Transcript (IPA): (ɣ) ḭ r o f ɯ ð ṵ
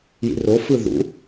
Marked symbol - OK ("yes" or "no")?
no